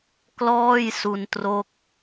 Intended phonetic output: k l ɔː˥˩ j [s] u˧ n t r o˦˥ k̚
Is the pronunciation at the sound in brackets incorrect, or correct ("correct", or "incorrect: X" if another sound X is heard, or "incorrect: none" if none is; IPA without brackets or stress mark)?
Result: correct